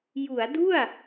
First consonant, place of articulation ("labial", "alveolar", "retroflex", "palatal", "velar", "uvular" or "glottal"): palatal